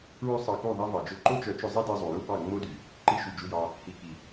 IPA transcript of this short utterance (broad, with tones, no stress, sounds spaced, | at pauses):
ɹ ʉ˦ sˤ ɑ˧ k u˦˨ ðˤ ɛ˦ v ɑ˨ d͡ʒ ɵ˦˨ ǃ o˦ t͡ʃ œ˨˦ t͡ʃ ɵ˧ zˤ i˦ d e˧ zˤ u˨ j u˦ b ɑ˦˨ ŋ͡m o˦ d y˨ | ǃ i˧ ʃ y˨ d͡ʒ u˧ j ɑ˧ | h i˨ k i˨